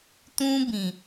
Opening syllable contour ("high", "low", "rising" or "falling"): high